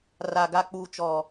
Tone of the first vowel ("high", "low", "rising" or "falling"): low